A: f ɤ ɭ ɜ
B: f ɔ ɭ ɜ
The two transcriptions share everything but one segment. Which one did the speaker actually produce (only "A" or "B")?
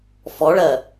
B